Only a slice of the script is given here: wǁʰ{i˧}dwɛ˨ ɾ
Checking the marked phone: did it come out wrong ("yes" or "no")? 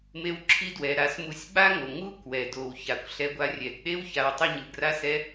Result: no